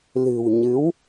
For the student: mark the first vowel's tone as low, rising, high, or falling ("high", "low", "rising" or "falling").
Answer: low